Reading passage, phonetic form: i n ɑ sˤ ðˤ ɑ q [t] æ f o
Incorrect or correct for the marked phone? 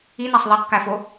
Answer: incorrect: k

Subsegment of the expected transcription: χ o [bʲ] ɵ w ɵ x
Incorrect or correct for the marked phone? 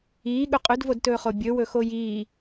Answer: correct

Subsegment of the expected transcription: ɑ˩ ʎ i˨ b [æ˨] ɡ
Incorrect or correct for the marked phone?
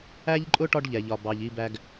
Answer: correct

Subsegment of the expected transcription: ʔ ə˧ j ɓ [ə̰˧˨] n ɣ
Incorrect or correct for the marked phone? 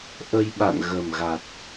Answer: incorrect: a̰˧˨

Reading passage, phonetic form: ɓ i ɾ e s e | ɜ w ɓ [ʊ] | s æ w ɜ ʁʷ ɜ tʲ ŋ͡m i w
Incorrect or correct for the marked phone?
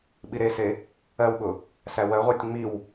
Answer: correct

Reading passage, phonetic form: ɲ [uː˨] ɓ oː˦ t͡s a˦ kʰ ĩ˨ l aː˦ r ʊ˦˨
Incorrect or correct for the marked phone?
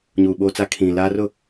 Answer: correct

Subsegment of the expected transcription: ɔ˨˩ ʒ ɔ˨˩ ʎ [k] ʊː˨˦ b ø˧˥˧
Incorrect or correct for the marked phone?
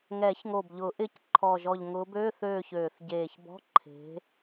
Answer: incorrect: ŋ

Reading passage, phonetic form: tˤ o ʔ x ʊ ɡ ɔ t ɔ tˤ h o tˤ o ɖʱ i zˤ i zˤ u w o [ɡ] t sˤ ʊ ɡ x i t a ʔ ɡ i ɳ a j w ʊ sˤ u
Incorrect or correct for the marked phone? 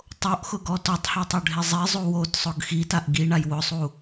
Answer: incorrect: none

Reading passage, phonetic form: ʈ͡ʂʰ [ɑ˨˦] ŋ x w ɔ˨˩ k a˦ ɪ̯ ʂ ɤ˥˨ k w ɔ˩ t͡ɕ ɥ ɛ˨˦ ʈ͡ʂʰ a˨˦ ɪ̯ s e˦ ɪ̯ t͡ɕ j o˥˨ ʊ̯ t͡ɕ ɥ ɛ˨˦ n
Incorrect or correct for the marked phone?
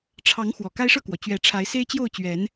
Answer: correct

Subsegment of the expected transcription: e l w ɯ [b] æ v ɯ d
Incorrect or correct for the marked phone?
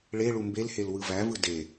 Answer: incorrect: v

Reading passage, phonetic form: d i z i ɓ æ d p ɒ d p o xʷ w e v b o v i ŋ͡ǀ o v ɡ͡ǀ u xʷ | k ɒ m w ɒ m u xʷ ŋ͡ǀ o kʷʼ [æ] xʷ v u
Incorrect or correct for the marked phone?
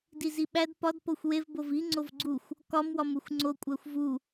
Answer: correct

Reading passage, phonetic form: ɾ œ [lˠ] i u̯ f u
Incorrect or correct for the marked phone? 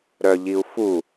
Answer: incorrect: ʎ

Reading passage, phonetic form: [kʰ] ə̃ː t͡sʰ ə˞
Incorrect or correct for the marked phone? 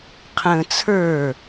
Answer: incorrect: qʰ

